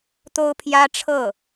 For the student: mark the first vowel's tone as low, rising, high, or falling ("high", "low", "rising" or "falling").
high